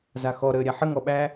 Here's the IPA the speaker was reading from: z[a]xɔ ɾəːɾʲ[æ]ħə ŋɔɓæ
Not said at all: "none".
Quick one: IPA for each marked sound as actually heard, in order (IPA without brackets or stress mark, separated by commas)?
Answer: a, a